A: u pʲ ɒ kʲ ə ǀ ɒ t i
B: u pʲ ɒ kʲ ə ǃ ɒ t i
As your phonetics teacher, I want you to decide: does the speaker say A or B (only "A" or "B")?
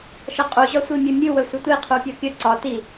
A